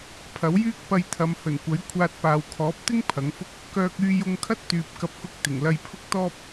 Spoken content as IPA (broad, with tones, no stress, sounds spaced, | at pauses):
pʰ ɐ˨˥ w j yː˥ k̚ p ɐ˧ j t̪ʰ ɐ˨˧ m h ɵ˨˩ n kʷ ɐ˨˥ j kʷʰ aː˧ t̚ p aː˨ w kʰ ɔː˨˥ p̚ t̪ ɪ˥ ŋ pʰ ɐ˨˥ ŋ f ʊ˥ k̚ | k œː˧ k̚ yː˧ j ʊ˧ ŋ kʰ ɐ˥ t̚ t̪ yː˨ p̚ k ɐ˧ p̚ k ʊ˧ k̚ t̪ ɪ˨˩ ŋ l ɐ˧ j pʰ ʊ˥ k̚ t̪ ɔː˥ p̚